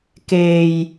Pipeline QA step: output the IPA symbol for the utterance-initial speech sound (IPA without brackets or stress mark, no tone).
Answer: k